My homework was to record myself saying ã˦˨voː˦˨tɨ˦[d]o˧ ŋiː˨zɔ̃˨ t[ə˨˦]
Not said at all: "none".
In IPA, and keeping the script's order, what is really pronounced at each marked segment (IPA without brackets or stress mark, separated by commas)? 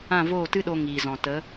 ɗ, ə˨˦